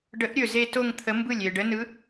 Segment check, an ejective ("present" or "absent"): absent